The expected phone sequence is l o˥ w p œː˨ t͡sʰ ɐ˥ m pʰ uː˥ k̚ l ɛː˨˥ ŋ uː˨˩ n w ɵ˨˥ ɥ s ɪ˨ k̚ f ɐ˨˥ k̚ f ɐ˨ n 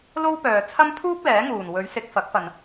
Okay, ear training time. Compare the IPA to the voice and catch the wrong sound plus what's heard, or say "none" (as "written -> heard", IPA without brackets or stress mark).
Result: none